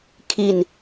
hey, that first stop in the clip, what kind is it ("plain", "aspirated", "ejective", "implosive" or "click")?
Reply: aspirated